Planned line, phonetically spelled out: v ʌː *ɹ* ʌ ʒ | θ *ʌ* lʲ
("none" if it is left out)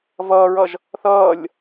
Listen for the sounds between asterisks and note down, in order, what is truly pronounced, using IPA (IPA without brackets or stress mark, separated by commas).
ɹ, ʌː